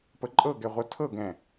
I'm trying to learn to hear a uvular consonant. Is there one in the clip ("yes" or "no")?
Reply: yes